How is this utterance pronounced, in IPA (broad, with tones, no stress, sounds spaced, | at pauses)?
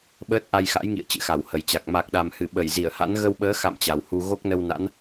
ɓ əː˦˥ t̚ ʔ a˧ j x a̰˧˥ j ŋ ḭ˧˨ ə̯ t͡ɕ ɨ̰˧˨ x a˧˩ w h ə˨˩ j t͡ɕ a˨˩ k̚ m a˨˩ k̚ ɗ a˨˩ m h ɨ˧˩ ɓ ə˧˩ j z i˧˩ ə̯ h a̰˧˥ n ɣ ə˧ w ɓ əː˨˦ x a̰˧˨ m t͡ɕ a˨˩ w h u˧ ɣ o˦˥ k̚ n ə˧ w n a̰˧˥ n